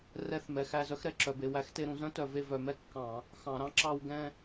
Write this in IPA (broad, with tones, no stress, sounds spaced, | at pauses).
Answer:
r ɛ˦˥ θ m ɛ˩˧˩ x æ˥˧ z œ˦˥ x ɾ ɛ˩˧˩ ǁ œ˧˩˧ b e˩˧˩ w æ˦˥ x t e˦˥ ɾ ũ˧˩˧ z œ̃˦˥ t œ˧˩˧ v e˥˧ v œ˧˩˧ m ɛ˥˧ kː ɑ̃˧˩˧ | x ɑ̃˧˩˧ ɾ ɑ̃˦˥ ǁ ɑ˥˧ w ɡ ɛ̃˥˧